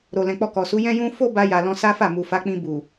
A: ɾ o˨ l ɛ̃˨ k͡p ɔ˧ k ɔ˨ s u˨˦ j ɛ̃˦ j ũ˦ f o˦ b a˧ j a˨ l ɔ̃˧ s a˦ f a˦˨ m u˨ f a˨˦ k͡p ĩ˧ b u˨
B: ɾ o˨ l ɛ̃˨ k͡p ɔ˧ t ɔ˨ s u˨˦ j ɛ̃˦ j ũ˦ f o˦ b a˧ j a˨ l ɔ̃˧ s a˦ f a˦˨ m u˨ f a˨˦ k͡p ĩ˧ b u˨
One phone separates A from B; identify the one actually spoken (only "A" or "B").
A